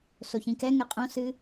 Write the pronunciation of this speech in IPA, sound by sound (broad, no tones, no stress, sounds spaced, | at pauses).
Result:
s o ç ĩ k ɛ ŋ ɛ qʼ õ s ɨ